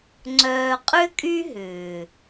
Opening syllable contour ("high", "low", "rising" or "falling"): low